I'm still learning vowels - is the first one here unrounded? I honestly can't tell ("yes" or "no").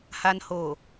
yes